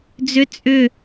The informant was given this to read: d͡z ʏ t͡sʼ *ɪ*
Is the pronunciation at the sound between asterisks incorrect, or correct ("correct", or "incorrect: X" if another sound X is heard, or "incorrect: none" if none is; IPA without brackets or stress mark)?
incorrect: ʏ